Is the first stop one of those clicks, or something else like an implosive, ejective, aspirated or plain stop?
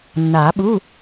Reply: implosive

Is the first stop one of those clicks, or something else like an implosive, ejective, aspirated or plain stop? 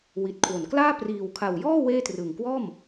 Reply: plain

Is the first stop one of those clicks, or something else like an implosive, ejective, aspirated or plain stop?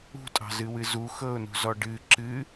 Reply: ejective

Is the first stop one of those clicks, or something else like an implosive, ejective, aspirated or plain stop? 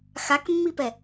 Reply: plain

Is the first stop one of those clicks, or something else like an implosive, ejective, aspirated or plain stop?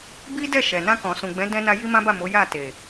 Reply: plain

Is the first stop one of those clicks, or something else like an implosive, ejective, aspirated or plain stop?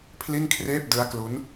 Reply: aspirated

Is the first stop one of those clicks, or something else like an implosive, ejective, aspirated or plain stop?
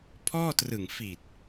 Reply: aspirated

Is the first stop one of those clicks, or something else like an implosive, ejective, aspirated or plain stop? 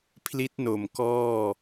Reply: aspirated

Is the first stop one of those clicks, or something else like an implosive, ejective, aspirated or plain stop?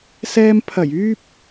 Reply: aspirated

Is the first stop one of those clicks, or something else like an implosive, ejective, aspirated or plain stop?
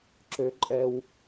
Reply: click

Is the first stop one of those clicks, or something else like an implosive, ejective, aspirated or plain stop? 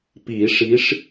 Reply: plain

